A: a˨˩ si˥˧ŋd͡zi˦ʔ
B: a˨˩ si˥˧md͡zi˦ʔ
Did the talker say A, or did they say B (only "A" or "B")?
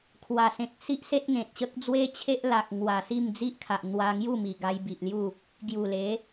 B